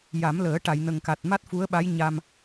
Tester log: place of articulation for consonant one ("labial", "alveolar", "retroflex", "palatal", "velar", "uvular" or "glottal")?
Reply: palatal